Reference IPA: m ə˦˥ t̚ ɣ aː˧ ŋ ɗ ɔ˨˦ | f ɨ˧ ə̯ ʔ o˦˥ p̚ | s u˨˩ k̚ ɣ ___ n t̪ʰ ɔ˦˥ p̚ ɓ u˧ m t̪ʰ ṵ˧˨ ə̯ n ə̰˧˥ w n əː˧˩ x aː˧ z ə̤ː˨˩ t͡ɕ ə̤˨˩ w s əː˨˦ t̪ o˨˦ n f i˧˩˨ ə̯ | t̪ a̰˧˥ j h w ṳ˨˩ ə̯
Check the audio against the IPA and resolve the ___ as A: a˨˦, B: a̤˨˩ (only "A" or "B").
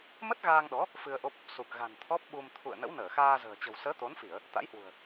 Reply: B